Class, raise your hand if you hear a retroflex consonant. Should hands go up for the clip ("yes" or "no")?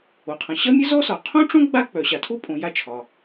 yes